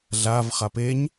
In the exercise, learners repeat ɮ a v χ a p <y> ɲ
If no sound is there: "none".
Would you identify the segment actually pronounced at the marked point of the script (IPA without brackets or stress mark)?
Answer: e